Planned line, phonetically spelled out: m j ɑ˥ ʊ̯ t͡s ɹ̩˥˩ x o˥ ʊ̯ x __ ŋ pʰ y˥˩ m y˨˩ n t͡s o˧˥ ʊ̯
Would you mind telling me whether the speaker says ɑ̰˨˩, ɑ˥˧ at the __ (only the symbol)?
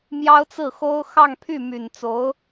ɑ˥˧